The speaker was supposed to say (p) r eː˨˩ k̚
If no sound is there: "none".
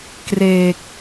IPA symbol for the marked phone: k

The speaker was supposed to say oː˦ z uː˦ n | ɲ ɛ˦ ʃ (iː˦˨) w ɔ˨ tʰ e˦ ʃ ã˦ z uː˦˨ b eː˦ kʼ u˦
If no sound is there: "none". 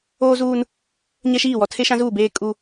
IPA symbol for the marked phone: iː˦˨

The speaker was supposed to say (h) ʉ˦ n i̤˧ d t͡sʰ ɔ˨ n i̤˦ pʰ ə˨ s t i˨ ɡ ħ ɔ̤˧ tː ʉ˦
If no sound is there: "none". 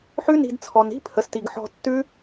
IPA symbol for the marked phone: ħ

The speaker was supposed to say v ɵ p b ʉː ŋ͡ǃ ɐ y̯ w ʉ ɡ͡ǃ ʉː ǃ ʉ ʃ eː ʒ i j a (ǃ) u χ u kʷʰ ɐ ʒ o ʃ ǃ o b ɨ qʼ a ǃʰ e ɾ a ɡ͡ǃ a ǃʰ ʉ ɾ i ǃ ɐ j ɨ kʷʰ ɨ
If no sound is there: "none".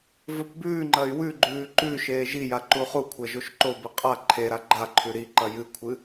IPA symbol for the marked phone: ǃ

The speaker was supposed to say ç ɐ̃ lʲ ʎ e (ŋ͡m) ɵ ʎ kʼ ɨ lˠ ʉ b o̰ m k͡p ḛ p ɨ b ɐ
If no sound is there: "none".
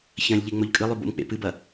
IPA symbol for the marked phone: ŋ͡m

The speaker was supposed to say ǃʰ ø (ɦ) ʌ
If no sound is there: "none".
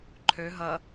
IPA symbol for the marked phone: ɦ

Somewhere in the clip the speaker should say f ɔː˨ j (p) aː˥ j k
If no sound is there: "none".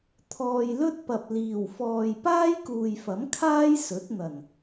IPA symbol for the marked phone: p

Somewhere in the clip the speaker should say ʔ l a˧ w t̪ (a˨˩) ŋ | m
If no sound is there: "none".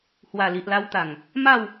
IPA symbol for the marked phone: a˨˩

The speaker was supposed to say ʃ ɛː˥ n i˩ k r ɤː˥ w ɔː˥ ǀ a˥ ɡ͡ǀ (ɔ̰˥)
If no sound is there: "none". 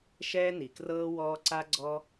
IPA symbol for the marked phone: ɔ˥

